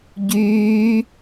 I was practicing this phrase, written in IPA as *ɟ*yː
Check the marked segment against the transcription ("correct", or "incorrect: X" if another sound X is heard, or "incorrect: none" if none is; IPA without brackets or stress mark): correct